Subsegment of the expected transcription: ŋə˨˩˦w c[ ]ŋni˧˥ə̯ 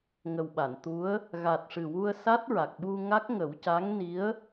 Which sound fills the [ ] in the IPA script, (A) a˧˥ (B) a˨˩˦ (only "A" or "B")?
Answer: A